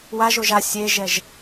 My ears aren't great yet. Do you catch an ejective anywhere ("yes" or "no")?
no